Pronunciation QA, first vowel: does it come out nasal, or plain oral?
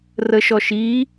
oral